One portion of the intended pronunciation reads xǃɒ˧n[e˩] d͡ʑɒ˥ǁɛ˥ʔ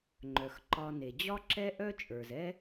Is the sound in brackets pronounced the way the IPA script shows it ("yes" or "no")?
yes